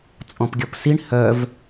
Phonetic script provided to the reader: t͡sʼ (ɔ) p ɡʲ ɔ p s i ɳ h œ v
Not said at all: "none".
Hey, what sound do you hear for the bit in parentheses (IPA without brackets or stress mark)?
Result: ɔ̃